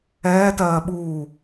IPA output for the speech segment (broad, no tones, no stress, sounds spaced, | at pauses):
ɛː t ɜː ɓ uː